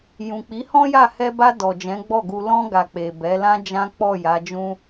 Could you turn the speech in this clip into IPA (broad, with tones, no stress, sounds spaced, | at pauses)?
j ũ˨ k͡p i˨˦ h ɔ̃˦ j a˦˨ h ɛ˧ b a˧ d ɔ˨ d͡ʒ ɛ̃˨˦ ɡ͡b ɔ˦˨ ɡ u˧ l ɔ̃˧ ɡ a˨ k͡p e˨ b ɛ˨˦ l ã˦ d͡ʒ ã˦ k͡p ɔ˦˨ j a˨˦ d͡ʒ ũ˦